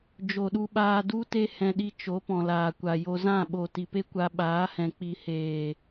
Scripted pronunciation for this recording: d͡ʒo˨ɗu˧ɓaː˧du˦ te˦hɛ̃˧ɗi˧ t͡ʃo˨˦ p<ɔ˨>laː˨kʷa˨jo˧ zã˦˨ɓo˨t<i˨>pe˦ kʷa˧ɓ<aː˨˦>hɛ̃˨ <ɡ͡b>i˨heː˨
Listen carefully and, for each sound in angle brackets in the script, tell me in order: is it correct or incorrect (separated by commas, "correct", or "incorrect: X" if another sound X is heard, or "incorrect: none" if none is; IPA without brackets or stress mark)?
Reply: incorrect: ɔ̃˨, correct, correct, incorrect: k͡p